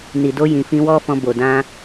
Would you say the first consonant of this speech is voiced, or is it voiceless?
voiced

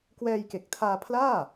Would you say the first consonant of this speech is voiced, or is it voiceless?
voiceless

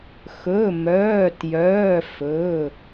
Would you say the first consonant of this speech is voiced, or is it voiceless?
voiceless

